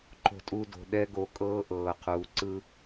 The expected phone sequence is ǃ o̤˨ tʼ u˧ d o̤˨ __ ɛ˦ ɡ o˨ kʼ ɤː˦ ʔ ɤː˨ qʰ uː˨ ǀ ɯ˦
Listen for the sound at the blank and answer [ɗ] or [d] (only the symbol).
ɗ